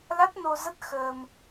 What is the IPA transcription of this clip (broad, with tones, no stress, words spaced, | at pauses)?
la˦˥t̚no˧zə˦˥t̚ xəː˧m